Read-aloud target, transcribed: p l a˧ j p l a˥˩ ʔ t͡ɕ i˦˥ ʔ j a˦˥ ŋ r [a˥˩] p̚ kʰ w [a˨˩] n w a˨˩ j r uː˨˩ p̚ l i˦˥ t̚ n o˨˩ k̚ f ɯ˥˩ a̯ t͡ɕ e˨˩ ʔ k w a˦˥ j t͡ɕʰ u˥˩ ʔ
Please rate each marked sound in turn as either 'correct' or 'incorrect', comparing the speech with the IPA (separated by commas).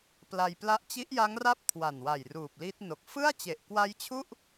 correct, correct